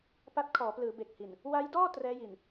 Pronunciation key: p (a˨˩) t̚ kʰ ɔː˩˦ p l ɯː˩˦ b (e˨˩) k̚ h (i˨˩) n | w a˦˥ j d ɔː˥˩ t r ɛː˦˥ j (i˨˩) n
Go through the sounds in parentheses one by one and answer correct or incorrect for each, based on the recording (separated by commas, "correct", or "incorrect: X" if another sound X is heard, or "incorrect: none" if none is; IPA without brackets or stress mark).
incorrect: a˦˥, correct, correct, correct